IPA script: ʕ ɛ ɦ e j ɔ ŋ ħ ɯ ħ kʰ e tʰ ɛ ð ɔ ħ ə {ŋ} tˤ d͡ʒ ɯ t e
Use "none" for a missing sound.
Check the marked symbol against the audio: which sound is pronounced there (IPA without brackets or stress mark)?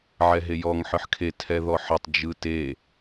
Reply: none